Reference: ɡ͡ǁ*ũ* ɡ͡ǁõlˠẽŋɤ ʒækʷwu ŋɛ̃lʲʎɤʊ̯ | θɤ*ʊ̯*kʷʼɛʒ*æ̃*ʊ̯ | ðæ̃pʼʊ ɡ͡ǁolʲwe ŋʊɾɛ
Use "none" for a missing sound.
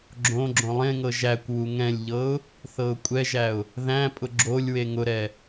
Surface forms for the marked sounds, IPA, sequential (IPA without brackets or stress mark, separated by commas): õ, ʊ̯, æ